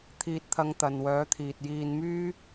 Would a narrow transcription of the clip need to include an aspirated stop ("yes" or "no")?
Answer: yes